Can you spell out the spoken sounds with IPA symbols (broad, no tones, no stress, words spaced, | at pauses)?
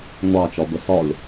ŋʷɑt͡ʃɒbə sɒlʲ